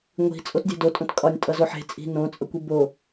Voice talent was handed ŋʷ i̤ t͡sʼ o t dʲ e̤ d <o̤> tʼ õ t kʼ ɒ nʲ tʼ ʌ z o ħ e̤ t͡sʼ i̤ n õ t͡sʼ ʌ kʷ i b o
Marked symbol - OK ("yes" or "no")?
no